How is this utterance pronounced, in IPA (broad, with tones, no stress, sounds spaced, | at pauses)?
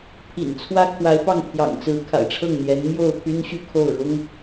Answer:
pʰ ḭ˨˩ n t͡sʰ w ä˥ kʰ w a˧˥ ɪ̯ p ɑ˥˩ ŋ pʰ j ɑ̰˨˩ ŋ t͡s ɹ̩˧˥ kʰ a̰˨˩ ɪ̯ ʈ͡ʂʰ ɤ˥˩ ŋ n̪ j ɛ˧˥ n m j o˥˩ ʊ̯ pʰ y˥ n ɕ y˥˧ kʰ o˥˩ ʊ̯ ɻ ʊ˥ ŋ